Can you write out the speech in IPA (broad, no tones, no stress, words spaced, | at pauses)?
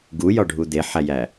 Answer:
ɡujɒɖʱu d̪eħæjæ